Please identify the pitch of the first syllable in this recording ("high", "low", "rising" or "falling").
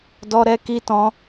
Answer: high